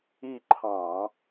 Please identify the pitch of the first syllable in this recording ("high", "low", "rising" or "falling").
falling